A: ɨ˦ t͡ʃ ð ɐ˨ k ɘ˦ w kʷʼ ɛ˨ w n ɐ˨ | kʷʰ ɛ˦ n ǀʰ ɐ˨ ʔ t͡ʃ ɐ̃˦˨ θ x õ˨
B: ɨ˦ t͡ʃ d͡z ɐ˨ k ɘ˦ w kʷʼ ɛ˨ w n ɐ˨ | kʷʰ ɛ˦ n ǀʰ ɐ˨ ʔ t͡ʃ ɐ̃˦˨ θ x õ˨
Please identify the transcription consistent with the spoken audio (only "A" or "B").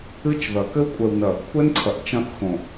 A